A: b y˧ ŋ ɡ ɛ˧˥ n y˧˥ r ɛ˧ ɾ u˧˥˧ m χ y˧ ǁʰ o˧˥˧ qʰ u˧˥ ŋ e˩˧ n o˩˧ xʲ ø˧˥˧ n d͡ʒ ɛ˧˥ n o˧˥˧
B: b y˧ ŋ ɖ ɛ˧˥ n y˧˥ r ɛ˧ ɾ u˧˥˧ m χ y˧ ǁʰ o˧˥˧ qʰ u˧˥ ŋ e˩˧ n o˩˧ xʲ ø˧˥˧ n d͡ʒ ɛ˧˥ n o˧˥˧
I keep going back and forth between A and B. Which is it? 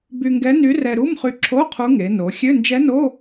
A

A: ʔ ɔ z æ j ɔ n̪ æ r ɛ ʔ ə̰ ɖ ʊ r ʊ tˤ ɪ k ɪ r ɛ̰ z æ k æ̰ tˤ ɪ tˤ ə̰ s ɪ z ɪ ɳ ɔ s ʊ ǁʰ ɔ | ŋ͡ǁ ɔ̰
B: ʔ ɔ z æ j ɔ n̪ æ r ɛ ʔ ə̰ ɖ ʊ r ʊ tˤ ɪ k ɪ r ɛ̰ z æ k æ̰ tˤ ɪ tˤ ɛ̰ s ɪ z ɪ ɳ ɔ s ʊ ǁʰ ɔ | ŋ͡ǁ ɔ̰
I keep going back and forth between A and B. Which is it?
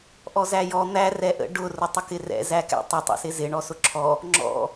B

